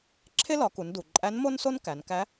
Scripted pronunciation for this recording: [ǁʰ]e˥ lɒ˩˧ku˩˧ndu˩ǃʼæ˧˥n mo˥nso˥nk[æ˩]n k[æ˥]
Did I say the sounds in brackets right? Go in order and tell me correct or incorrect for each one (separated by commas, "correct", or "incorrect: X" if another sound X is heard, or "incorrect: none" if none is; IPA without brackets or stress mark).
correct, incorrect: æ˩˧, incorrect: æ˧˥